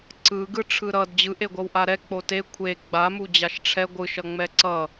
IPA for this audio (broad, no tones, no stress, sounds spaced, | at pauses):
ǀ ɯ ɡ ɯ ʈ͡ʂʰ ɯ ɾ ʌ d d͡ʑ ɯ ʔ e ɡʷ ʌ w ʔ a ɾ ɛ k͡p o t e kʷʰ e ɡ͡b a m u d͡ʑ a ʃ ʈ͡ʂʰ ɛ ɡʷ ɯ ʃ ʌ ŋ͡m ɛ ǀ ʌ